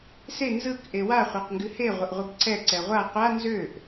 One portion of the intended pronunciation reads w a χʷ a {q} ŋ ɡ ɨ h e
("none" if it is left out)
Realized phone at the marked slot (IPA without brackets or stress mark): q